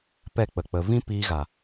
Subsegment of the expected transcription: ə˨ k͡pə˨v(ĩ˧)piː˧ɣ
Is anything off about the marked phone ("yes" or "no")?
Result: yes